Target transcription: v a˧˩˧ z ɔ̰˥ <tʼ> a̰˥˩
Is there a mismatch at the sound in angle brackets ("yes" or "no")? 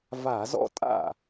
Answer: no